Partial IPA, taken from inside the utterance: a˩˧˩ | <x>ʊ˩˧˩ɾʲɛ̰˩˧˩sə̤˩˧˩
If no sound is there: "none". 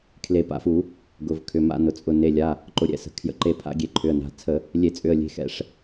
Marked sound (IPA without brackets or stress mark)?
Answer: ǃ